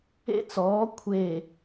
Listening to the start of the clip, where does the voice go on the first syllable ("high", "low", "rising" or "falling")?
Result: high